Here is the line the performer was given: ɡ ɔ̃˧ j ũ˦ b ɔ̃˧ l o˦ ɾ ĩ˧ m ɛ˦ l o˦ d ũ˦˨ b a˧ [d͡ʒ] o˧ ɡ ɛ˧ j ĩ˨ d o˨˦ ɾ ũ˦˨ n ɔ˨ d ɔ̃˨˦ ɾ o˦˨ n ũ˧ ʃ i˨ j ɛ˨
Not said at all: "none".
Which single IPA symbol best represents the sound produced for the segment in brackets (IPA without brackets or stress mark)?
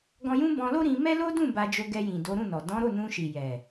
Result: d͡ʒ